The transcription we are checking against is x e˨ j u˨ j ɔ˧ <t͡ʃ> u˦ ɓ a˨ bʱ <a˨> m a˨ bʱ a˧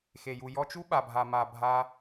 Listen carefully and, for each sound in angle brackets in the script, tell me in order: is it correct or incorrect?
correct, correct

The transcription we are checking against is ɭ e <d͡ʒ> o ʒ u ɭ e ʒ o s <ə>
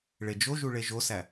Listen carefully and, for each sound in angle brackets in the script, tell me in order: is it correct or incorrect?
correct, incorrect

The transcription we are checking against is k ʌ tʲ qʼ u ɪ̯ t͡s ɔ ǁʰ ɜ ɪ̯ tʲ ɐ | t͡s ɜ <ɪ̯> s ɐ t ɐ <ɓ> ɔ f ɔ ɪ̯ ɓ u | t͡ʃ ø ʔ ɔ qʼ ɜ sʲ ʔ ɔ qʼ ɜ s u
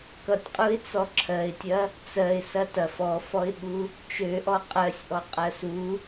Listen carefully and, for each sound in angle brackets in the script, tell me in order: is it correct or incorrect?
correct, incorrect

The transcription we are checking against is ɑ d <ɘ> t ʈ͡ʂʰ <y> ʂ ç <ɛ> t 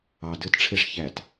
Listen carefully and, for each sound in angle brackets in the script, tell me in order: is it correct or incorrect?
correct, incorrect, incorrect

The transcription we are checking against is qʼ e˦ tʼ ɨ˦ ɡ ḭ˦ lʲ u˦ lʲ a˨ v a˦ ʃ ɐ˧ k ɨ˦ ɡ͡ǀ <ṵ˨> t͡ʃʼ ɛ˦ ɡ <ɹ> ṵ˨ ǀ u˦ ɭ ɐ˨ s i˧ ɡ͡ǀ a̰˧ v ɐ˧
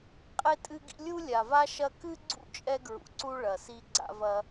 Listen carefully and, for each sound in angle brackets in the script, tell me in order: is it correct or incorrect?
incorrect, correct

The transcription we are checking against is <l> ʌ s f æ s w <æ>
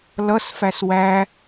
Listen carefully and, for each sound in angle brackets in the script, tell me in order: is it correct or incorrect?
correct, correct

